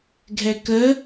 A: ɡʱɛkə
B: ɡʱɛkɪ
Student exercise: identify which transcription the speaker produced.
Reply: A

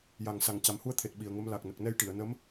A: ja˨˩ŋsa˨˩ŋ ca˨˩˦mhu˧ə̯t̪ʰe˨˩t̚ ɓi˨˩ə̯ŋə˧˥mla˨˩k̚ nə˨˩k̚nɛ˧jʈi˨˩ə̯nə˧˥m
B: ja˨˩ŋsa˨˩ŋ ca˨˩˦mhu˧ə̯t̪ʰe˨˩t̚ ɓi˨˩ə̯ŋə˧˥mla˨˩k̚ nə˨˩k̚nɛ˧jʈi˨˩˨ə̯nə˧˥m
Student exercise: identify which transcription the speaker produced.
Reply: B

